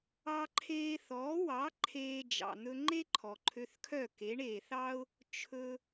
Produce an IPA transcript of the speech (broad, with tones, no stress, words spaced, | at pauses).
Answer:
ɑ˧ǃʰeː˧ θɔː˩˥wɑ˩˥ ǃʰeː˧d͡ʒɑ̰˩ n̪ɵ˧ŋ͡ǃe˥ ǃʰɔ˩ǃʰø˧θkʰœ˥˩ ke˩˥ɳe˩θɑ˥ʊ̯ | t͡ʃʰɵ˧